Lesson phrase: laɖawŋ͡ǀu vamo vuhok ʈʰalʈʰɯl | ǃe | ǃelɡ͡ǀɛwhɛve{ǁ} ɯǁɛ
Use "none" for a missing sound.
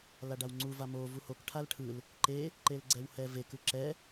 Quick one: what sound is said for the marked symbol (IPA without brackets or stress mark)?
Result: k